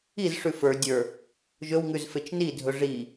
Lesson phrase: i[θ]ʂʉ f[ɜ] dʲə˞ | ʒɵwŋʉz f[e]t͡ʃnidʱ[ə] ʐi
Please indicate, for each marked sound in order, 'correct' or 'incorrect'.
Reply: incorrect: z, incorrect: ə˞, correct, incorrect: ɵ

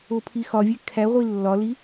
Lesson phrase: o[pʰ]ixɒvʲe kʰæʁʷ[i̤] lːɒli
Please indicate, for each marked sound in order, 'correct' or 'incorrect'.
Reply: correct, incorrect: i

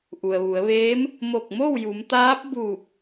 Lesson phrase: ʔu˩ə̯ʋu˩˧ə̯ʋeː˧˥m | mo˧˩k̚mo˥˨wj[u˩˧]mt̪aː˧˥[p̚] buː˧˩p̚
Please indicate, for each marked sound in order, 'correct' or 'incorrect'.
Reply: correct, correct

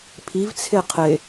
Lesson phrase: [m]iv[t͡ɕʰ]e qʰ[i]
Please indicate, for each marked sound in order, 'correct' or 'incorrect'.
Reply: incorrect: pʰ, incorrect: t͡sʰ, incorrect: e

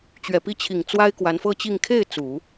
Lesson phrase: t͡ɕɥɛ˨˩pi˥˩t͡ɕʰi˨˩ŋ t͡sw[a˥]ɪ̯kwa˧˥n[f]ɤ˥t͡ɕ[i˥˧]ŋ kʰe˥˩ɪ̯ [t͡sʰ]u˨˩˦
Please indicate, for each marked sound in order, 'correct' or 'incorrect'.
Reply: correct, correct, correct, incorrect: t͡s

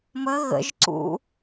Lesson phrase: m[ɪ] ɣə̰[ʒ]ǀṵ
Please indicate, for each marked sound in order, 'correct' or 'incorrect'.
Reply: incorrect: ə, correct

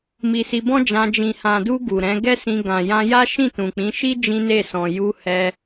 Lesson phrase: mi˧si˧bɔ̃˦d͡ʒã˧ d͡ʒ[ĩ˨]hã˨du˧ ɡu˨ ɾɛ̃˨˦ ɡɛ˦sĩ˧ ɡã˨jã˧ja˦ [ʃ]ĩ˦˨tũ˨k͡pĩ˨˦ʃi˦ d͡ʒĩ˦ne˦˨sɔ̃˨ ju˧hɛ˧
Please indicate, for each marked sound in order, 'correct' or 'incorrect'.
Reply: correct, correct

